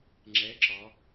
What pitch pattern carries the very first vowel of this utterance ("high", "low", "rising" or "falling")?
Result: rising